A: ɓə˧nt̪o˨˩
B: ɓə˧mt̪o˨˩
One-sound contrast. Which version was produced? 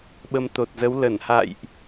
B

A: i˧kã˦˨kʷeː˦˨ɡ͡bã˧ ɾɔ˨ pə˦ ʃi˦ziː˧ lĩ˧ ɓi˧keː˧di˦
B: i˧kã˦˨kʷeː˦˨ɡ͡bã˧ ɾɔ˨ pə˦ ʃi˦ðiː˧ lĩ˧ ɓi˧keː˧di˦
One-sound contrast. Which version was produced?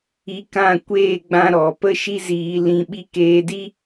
A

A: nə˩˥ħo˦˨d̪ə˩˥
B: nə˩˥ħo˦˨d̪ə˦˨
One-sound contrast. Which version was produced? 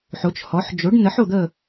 B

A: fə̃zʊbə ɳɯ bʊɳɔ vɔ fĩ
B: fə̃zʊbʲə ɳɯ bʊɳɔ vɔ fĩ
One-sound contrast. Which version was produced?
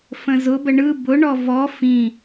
A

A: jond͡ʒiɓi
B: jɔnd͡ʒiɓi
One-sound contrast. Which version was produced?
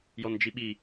B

